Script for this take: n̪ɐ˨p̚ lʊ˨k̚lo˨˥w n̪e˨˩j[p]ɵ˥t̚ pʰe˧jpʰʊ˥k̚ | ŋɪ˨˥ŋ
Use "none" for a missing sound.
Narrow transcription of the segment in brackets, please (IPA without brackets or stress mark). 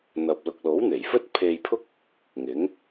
f